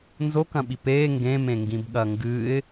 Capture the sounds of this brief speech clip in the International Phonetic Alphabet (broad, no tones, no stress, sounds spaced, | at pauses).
n z o k ɐ̃ ɓ i p e ŋ ɡ ẽ m ẽ ŋ ɡ ĩ b ɠ ɐ ŋ ɡ ɨ ɪ̯